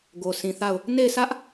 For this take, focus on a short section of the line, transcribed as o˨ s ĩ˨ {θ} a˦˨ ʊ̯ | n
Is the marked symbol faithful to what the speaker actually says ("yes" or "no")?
yes